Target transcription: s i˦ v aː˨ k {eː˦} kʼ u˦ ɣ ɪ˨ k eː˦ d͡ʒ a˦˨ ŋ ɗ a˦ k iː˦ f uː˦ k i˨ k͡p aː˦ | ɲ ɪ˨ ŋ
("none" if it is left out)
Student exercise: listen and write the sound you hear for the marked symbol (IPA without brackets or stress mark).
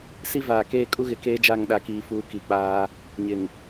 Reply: eː˦